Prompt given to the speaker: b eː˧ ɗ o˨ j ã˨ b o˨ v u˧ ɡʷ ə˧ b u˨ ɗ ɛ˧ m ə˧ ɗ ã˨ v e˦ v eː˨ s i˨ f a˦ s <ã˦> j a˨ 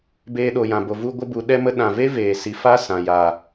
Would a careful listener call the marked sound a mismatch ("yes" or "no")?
yes